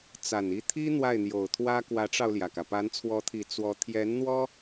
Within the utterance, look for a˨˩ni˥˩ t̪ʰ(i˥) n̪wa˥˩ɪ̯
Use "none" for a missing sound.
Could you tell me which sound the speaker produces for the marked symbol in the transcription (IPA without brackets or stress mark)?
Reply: i˥